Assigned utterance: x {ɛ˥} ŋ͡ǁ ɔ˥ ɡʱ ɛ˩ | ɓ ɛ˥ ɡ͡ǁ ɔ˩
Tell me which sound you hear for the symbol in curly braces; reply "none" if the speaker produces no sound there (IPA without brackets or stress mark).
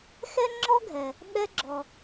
ɛ˥